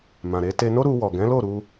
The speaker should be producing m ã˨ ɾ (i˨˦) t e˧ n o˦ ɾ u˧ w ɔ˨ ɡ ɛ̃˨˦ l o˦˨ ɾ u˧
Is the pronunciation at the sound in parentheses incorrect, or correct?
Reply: incorrect: e˨˦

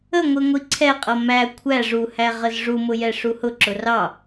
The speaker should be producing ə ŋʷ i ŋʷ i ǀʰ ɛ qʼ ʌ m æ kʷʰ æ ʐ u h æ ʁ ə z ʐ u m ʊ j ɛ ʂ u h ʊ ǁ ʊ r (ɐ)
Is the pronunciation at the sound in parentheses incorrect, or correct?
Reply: incorrect: ɑ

